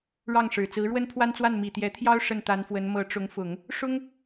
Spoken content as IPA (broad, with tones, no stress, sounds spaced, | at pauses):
ɻ ɑ˥˩ ŋ ʂ ɻ̩˨˩ t͡s ɹ̩˧˥ ɻ w ə˥ n pʰ w a˥ n t͡s w a˥˩ n m i˨˩ t̪ j ɛ˧˥ t̪ʰ j ɑ˥ ʊ̯ ʂ ə˥˩ n t̪ a˧˥ n f w ə˧˥ n m ɤ˧˥ ʈ͡ʂ ʊ˧˥ ŋ f ʊ˨˩˦ ŋ | ʂ ʊ˥ ŋ